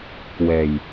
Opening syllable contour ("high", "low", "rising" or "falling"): low